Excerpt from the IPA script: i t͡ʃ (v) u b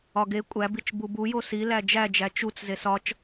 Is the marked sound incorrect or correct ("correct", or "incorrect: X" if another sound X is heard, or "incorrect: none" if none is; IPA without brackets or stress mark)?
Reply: incorrect: b